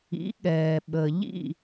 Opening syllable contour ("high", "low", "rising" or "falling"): rising